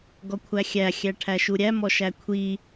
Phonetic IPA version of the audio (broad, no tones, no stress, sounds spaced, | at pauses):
ɡ ɔ kʷʰ æ xʲ æ xʲ æ ʈʰ æ ʃ u ɾʲ æ m ɔ ʃ æ kʷʰ i